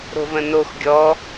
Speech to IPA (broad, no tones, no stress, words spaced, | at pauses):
ɾo̤və̃nox ɡʲɔ